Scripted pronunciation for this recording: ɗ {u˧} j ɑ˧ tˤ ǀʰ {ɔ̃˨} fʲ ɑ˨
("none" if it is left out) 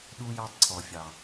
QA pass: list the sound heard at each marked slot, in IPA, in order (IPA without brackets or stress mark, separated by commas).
u˧, ɔ˨